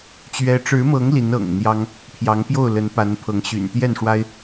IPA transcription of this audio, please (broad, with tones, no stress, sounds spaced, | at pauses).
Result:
t͡ɕ ɥ ɛ˦ ʈ͡ʂ ɻ̩˨˦ m ɤ˨˦ ŋ l i˨˦ n ɤ̰˨˩ ŋ n̪ j ɑ˦ ŋ | pʰ j ɑ˨˦ ŋ p j o˥˨ ʊ̯ l ə˨˦ n p a˨˦ n pʰ ɤ˨˦ ŋ ɕ y̰˨˩ n t̪ j ɛ˥˨ n ʂ w a˦ ɪ̯